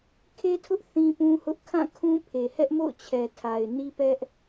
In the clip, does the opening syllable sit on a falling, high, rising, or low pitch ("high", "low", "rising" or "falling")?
high